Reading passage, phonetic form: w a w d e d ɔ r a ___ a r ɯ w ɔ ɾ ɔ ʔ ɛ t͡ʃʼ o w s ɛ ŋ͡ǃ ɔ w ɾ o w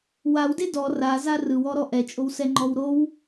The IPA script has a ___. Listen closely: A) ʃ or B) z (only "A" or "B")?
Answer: B